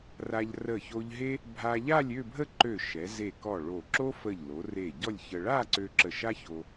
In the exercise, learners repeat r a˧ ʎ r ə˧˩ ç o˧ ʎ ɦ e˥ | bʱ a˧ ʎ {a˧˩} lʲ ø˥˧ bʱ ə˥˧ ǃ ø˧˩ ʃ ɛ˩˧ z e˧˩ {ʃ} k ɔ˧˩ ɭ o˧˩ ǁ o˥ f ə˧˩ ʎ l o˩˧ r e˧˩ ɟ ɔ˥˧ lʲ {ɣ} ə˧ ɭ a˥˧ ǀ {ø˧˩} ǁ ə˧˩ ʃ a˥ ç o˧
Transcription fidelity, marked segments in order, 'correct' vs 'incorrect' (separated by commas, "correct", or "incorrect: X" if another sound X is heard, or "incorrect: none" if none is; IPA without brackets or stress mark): incorrect: a˥˧, incorrect: none, incorrect: ç, incorrect: ø˧